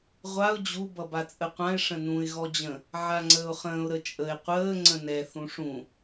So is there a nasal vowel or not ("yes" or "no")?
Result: yes